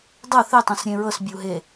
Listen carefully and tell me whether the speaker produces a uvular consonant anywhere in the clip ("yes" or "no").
no